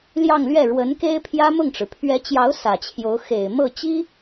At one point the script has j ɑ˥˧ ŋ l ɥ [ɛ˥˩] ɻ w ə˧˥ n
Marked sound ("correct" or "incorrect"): correct